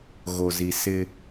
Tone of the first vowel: low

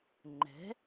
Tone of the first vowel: rising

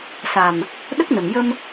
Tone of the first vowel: low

